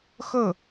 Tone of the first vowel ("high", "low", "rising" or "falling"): falling